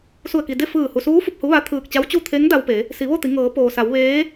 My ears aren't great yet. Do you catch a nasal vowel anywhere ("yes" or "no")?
no